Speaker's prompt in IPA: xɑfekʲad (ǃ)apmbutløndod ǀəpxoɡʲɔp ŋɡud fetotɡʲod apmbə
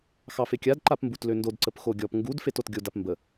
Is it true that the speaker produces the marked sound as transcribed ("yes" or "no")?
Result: yes